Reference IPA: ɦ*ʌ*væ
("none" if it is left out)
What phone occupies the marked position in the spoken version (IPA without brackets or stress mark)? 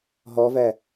ɔ